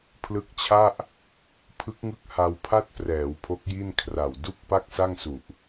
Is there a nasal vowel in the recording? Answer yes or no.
no